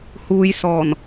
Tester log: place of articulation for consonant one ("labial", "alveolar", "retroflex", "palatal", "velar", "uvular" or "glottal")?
glottal